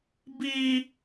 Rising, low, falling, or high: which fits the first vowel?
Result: high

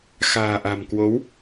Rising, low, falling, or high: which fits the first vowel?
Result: low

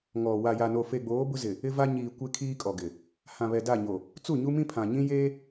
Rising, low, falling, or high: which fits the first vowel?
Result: low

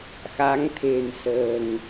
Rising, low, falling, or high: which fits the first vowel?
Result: rising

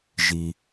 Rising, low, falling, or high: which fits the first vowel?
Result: low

